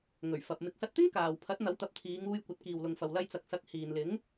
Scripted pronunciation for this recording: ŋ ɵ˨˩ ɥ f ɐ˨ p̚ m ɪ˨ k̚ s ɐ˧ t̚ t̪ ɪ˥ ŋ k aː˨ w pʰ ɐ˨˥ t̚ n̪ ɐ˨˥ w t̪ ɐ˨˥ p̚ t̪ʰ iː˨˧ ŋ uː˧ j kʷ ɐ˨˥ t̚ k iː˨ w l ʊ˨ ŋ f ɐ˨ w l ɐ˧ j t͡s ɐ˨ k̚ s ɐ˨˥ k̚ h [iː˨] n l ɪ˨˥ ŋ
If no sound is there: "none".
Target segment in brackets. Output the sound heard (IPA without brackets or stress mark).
iː˨